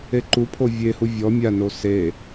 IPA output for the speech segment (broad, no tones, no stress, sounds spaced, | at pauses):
e ǃ u pʰ o vʲ e h u vʲ ɔ mʲ a n o s e